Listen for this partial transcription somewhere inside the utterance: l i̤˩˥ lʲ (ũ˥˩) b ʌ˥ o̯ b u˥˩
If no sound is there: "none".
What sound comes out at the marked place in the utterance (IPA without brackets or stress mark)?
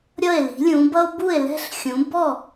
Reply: ũ˩˥